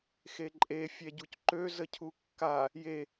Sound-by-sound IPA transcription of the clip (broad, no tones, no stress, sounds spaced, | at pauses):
x e ǃʼ e fʲ ɛ ɟ u c ǃ ø z ə cʰ u kː a | j e